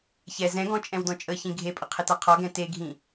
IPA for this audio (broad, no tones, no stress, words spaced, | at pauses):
çɛ zɛ̃ɡɔ̃ t͡ʃʼɛ̃wdɔ̃t͡ʃʼəçĩ ɡʱepʼə qʰɪtaqʰɔɡɛ̃ teɡʱĩ